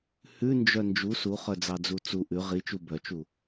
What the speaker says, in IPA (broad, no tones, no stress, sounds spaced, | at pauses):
h ʉ n d͡ʒ œ n d͡ʒ u s u χ œ d͡z ɑ d͡z u t͡s u ʔ ʉ ʁ i t͡ʃ u b œ t͡ʃ u